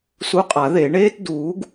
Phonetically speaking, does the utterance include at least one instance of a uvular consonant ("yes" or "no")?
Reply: yes